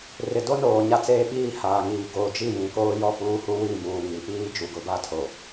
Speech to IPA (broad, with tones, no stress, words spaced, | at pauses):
rɪ˨do˦noː˨ ɲa˦t͡seː˦ɓiː˦˨ haː˨ŋiː˨ɡoː˨ d͡ʒi˦˨jĩ˨koː˦ jɔ˦˨puː˦hu˦ wi˦˨muː˨ŋi˨piː˦ d͡ʒu˨ɡʊ˨˦ba˦tʰo˨